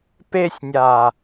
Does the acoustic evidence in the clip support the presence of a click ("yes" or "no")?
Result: no